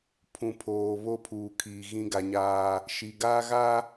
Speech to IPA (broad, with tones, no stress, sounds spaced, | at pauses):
pʰ ũ˨ pʰ oː˨ β o˦ pʰ uː˨ kʰ iː˨ ɣ ĩ˦ ɡ a˦ ɲ aː˦ | ʃ i˨ ɡ aː˦ ɣ a˦